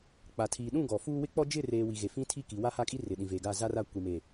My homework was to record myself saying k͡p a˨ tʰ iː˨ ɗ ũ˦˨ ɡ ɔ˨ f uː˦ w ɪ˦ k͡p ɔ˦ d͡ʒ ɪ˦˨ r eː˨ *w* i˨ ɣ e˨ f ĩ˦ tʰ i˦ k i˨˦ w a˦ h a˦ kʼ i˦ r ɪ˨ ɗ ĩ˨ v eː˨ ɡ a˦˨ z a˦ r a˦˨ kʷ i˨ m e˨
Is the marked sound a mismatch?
no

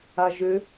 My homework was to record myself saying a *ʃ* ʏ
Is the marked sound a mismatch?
yes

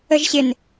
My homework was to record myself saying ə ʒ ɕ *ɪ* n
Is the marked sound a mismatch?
no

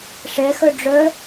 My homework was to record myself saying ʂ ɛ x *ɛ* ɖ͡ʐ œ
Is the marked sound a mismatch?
yes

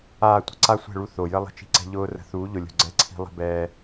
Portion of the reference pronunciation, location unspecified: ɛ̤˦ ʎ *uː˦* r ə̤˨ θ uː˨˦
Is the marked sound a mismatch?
yes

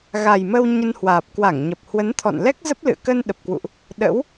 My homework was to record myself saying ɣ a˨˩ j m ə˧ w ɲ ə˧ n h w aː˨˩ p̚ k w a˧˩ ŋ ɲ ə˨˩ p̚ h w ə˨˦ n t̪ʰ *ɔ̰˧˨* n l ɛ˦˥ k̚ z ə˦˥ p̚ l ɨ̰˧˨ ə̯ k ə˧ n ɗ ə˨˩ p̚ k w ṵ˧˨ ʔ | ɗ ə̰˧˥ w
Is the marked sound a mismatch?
no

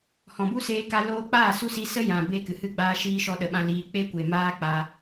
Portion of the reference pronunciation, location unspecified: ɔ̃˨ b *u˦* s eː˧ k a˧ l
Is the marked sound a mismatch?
no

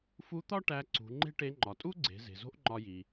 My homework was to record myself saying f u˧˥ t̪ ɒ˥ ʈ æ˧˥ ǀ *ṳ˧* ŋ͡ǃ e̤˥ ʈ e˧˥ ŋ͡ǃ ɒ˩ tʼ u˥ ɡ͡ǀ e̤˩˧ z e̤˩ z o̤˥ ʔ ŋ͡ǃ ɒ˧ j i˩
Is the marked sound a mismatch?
yes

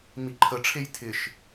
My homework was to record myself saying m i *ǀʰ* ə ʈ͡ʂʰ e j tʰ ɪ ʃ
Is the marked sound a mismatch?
yes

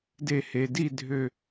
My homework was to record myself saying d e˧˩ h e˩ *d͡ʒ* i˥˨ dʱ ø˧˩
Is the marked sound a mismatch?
yes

